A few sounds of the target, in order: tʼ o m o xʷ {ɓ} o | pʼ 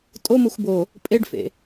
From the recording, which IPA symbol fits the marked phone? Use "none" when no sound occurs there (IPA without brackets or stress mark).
b